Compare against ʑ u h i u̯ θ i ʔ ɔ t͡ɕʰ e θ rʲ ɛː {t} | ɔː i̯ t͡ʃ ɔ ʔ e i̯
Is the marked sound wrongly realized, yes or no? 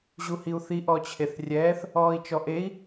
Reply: yes